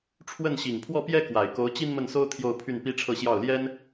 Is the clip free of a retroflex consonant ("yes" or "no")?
no